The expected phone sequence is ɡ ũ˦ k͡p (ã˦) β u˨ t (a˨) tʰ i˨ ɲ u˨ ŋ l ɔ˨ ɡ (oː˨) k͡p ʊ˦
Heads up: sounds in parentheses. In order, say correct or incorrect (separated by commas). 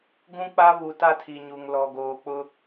incorrect, incorrect, correct